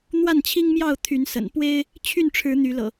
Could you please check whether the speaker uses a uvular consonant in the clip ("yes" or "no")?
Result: no